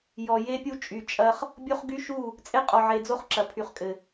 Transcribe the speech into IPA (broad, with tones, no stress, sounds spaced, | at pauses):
j ɔ˨ j e˦ pʲ u˦ t͡ʃʼ y˨ t͡ʃʼ ɐ˦ χ | bʲ o˦ χ ɡ y˦ ʃ u˦˨ | t͡sʼ e˦ qʼ ɔ˨ ʕ e˨ d͡z o˦ χ ǁ ɐ˨ pʰ y˨ χ kʼ ɘ˨